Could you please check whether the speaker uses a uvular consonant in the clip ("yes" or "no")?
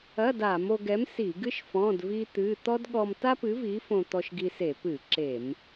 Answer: no